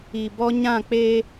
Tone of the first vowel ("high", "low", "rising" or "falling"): low